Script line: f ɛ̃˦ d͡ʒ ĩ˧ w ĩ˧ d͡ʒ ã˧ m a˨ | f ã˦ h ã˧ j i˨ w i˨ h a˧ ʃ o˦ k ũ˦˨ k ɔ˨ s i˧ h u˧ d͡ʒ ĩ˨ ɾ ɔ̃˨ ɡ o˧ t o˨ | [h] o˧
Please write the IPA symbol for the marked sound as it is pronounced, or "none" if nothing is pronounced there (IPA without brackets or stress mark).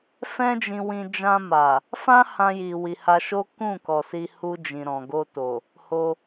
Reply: h